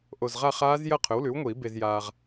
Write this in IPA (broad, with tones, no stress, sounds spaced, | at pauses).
ʔ o˨˩ z ʁ a˥˧ χ aː˦˥ z j ɐ˥˧ qʰ ɵ˩˥ w l ʉ˩˥ w ŋʷ iː˨˩˦ b e˧ z j aː˧ ʁ